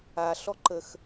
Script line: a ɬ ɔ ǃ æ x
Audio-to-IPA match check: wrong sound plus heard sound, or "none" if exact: æ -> ə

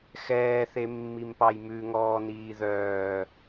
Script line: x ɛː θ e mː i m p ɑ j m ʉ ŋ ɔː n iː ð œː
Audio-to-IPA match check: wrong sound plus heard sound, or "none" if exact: none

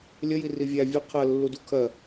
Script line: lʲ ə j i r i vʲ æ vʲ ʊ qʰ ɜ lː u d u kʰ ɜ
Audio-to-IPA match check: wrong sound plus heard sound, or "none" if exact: none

